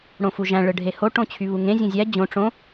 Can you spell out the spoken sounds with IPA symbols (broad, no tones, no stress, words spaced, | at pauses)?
ɽõfuʒæ̃ ɭɯɖʱeho ʈõt͡ɕʰyβuŋẽ zʲõzʲæ d͡ʑõ ʈ͡ʂõ